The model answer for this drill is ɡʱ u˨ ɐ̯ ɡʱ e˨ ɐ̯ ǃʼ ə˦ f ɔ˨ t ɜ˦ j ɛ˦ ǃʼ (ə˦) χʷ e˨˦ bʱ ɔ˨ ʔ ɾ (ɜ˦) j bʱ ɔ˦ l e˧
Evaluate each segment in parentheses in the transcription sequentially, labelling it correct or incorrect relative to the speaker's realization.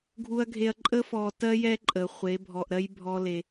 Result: incorrect, correct

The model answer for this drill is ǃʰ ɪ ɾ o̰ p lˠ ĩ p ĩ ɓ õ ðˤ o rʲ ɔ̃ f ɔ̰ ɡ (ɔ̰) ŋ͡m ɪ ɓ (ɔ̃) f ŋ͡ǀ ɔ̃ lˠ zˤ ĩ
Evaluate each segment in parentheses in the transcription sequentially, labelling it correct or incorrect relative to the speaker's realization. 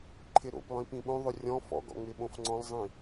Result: correct, incorrect

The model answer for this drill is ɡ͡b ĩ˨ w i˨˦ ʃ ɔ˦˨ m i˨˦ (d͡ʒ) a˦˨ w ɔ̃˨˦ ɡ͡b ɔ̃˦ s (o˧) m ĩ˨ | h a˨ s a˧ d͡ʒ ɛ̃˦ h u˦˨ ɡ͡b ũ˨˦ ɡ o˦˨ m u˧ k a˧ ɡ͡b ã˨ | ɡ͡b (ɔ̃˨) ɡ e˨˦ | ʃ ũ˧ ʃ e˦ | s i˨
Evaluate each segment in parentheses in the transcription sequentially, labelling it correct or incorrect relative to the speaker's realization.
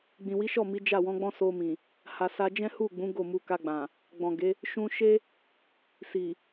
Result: correct, correct, correct

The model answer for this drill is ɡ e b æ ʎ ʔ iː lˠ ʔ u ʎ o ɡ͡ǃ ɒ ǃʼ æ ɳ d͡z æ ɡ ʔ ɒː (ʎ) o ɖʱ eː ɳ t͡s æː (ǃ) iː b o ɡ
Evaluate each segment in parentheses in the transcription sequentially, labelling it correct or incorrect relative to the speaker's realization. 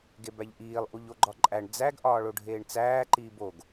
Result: incorrect, correct

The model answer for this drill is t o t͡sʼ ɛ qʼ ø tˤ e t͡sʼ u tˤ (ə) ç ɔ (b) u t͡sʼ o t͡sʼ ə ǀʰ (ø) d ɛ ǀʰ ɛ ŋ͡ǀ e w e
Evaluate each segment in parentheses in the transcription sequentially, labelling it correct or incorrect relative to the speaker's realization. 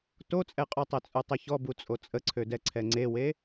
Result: incorrect, correct, correct

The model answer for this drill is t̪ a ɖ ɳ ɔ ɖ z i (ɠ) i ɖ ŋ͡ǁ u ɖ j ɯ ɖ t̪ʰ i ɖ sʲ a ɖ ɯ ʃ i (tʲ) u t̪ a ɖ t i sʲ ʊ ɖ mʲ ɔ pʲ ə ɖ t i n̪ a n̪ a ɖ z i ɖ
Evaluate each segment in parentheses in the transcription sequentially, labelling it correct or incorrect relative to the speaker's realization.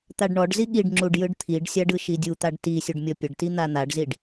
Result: correct, incorrect

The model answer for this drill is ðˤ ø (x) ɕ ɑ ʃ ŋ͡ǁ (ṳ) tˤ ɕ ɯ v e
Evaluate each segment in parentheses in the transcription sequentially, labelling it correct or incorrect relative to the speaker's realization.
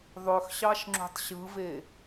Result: correct, correct

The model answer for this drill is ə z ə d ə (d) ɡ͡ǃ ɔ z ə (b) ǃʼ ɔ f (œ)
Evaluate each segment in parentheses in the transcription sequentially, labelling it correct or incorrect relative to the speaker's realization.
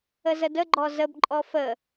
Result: incorrect, correct, incorrect

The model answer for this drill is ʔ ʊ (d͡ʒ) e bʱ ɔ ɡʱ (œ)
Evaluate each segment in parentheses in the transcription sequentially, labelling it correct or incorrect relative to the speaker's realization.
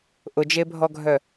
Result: correct, correct

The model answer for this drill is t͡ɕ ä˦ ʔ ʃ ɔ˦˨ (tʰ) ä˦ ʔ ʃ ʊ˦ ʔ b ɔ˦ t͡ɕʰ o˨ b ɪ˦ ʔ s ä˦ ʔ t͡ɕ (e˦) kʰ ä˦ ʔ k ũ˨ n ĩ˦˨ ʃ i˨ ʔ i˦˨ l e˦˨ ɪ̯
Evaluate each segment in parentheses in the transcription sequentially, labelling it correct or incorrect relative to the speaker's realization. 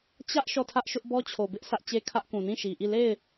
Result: correct, correct

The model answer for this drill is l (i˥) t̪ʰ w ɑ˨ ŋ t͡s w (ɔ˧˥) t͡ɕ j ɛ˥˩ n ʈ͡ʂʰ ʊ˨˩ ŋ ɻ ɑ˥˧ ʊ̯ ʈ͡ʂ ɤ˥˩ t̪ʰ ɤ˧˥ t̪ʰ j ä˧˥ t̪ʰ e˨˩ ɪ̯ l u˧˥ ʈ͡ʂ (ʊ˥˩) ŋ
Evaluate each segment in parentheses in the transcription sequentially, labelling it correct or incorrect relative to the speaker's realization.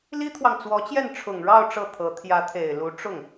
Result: correct, correct, correct

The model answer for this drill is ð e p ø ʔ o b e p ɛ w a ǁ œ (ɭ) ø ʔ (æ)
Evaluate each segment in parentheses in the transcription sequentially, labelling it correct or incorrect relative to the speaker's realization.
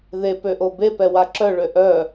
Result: correct, incorrect

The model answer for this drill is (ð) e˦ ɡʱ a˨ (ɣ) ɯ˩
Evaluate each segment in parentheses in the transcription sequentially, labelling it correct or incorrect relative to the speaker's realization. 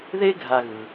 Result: correct, correct

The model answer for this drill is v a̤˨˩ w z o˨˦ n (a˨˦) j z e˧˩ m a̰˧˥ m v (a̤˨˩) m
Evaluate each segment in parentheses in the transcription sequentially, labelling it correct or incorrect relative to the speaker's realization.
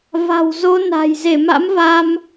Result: incorrect, incorrect

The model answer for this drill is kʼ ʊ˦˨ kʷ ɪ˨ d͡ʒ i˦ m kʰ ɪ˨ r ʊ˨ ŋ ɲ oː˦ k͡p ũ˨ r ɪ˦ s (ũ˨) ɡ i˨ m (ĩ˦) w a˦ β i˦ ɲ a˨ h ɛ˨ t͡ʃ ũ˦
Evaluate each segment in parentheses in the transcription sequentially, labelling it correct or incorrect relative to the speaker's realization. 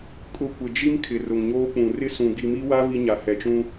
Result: correct, incorrect

